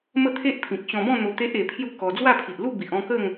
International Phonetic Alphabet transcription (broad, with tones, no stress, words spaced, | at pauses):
mə˥˧t̪ʰe˦ʔpʰĩ˨k̚ ɕɔ̃˧bɔ̃˥˧n̪o˧ t̪e˦ʔe˧pʰju˥˧ kɔ˧ d͡zwa˥˧pʰi˨ʔlu˥˧ bi˨ʔɔ̃˥˧kə˥˧ŋ